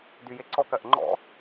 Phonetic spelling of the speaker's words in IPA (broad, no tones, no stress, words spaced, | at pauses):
dyjeǀɔk ɜʔŋ͡ǃɔ̰